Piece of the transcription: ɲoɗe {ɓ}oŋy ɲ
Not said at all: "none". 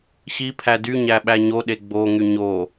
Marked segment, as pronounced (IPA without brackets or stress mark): ɡ͡b